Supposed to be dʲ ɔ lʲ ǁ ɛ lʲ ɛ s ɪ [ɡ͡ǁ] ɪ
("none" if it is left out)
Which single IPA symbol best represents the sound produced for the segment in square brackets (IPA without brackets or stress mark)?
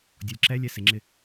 ŋ͡ǁ